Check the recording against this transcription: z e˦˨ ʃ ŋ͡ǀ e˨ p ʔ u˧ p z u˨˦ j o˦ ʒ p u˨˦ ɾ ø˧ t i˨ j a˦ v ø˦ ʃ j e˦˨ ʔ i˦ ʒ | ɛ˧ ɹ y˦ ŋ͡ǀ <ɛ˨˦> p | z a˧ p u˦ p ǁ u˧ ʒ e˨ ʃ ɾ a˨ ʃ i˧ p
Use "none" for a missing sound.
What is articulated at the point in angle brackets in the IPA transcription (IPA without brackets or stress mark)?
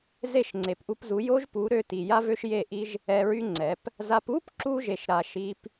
ɛ˨˦